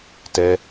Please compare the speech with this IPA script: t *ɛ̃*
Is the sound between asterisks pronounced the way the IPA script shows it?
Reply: no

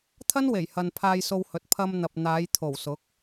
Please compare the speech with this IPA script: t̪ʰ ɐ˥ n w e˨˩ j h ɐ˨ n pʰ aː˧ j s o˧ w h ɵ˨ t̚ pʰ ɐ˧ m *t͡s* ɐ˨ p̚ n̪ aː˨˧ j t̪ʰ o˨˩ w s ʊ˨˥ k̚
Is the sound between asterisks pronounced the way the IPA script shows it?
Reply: no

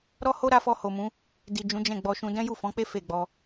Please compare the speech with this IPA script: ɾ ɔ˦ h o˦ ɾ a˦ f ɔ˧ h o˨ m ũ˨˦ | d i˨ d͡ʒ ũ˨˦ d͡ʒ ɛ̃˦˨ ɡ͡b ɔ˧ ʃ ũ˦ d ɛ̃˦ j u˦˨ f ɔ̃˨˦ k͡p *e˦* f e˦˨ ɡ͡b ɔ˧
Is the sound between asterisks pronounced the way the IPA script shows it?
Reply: yes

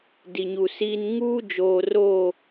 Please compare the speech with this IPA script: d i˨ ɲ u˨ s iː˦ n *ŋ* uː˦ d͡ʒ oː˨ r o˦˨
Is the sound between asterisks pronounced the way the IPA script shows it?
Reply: yes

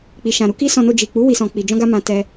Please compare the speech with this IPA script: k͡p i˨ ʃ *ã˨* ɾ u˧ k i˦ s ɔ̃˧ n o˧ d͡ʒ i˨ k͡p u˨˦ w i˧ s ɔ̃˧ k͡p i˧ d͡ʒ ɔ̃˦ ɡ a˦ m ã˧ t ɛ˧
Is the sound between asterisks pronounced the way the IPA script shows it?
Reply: yes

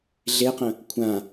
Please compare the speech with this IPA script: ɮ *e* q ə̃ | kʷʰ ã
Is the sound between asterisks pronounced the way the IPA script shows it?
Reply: yes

